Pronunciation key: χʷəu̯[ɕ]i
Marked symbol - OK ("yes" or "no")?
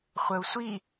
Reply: no